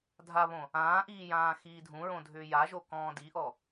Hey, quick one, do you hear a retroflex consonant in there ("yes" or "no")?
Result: no